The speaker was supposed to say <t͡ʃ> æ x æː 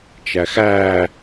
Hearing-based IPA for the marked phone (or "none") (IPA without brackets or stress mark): t͡ʃ